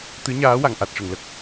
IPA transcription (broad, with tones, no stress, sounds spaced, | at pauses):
t̪ ɨ˧˥ ɲ aː˧˥ w a˨˩˨ ŋ ʔ a˨˩ t̚ ʂ ə˨˩˨ ŋ l ə˨˩ k̚